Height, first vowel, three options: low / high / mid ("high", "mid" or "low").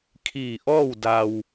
high